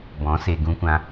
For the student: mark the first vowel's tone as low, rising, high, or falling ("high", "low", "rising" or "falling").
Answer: rising